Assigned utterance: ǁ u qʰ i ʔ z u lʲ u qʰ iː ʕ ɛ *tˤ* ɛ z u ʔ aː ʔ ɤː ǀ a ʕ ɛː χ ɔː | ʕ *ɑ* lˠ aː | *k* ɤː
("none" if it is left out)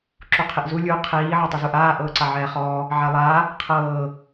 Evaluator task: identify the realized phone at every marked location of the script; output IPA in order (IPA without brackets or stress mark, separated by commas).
tˤ, a, qʰ